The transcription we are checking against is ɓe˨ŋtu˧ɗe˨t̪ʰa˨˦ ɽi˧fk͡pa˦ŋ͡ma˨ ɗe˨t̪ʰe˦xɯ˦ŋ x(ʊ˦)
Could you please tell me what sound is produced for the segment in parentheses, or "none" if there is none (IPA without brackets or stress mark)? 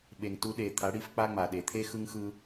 ɯ˦